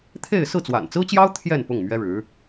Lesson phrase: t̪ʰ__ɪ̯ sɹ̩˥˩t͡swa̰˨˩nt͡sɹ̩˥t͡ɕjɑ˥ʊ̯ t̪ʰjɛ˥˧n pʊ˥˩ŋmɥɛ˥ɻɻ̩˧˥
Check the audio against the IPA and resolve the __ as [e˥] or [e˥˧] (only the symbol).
e˥˧